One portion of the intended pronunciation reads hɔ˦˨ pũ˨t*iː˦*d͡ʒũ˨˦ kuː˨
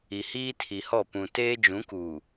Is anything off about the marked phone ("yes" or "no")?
yes